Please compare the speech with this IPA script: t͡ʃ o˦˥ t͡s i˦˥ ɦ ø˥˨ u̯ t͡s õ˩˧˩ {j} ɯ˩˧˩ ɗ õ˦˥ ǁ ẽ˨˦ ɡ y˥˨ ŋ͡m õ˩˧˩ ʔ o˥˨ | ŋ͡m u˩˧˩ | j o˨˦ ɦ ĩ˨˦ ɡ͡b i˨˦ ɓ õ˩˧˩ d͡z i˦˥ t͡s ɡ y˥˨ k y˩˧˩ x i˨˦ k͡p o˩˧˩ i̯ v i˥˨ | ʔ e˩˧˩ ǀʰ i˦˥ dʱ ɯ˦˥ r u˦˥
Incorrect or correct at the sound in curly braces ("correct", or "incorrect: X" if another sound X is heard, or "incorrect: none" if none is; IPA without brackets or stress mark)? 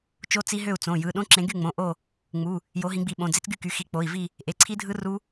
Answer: correct